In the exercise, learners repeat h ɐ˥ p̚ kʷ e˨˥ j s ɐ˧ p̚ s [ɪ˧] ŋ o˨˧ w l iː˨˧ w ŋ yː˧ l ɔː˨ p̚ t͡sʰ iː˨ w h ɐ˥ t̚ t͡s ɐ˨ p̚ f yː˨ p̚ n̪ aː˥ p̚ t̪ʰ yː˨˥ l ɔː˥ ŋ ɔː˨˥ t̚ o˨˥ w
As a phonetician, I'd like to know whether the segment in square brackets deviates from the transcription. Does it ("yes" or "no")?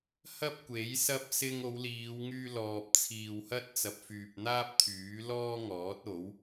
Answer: no